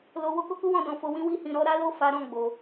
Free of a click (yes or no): yes